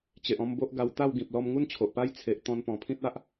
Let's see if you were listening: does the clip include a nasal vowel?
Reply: yes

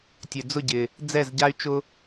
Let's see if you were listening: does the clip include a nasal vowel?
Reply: no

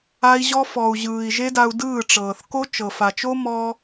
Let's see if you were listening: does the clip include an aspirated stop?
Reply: no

